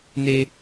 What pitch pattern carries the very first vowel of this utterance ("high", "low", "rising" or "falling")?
high